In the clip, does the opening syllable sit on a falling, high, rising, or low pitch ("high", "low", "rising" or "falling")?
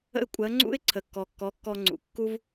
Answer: falling